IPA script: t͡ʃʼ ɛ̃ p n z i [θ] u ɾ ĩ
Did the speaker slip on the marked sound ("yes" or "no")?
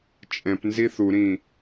no